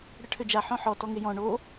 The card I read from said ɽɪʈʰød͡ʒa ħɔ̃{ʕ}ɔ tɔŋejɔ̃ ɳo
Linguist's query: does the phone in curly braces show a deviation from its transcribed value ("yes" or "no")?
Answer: yes